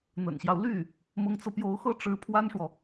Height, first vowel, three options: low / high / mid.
mid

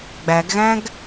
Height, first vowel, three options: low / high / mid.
low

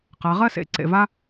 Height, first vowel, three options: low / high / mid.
low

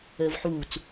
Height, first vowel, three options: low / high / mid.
mid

